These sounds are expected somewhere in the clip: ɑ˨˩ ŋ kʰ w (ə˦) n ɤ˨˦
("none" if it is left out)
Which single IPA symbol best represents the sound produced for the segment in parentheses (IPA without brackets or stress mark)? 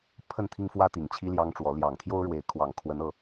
ə˨˦